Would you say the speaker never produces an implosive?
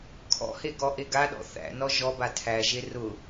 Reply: no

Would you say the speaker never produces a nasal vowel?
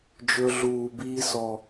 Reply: yes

